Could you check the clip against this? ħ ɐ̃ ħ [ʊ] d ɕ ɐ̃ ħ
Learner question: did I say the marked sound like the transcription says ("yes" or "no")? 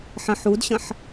no